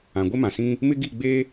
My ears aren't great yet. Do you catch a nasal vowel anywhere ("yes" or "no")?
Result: yes